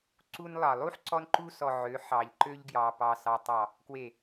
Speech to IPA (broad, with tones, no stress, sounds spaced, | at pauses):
ǀ u˦ n lˠ ɑ˨ lˠ u˦ ħ ǀ ɔ˦ n ǃ u˦ s ɔ˨ ʕ ø˨˦ ħ ɑ˨ ʎ ǃ ø˦ ʎ ɡ j ɑ˨ p ɑ˨ s ɑ˨ tˤ ɑ˨ | k w e˨